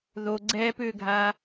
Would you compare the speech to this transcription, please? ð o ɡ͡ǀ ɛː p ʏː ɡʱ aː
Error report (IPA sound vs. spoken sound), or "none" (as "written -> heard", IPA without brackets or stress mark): none